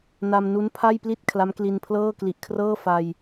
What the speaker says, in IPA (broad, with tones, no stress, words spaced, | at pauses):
na˧mnu˦˥n pʰa˥˩jpli˥˩t̚ kʰla˦˥mkli˧npʰlɤː˥˩ kli˨˩ʔkʰrɤː˥˩ fa˧j